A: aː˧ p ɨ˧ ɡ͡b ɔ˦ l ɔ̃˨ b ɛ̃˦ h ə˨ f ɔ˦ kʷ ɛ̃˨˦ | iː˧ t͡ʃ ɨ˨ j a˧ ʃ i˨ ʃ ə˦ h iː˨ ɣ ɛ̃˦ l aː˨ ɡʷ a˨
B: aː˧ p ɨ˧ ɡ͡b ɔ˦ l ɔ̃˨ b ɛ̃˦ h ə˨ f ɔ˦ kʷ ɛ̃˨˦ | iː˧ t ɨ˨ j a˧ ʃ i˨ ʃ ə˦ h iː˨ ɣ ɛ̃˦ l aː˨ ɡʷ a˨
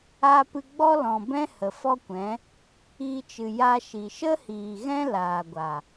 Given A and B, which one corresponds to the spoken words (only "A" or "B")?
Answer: A